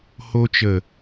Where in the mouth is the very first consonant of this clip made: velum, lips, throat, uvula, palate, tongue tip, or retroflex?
throat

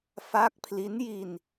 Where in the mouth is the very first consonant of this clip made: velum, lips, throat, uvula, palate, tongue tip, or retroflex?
lips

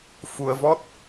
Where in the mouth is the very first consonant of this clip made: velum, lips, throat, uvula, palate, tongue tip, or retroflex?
lips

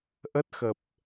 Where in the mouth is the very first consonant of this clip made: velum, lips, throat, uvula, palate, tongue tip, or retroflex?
throat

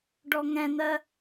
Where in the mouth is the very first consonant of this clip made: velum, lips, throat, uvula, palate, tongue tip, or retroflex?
retroflex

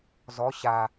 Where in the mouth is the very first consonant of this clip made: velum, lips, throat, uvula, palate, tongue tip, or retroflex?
tongue tip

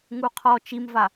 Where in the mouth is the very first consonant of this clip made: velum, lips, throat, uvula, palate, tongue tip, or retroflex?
velum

